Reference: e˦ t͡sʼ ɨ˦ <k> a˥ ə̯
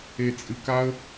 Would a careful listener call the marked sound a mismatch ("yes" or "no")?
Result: no